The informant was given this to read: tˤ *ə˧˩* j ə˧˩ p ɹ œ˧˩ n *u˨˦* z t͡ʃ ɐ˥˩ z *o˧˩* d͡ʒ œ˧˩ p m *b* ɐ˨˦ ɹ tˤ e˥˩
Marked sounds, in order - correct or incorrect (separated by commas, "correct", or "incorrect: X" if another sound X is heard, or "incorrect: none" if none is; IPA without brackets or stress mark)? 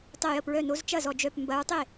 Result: correct, incorrect: o˨˦, incorrect: ɔ˧˩, correct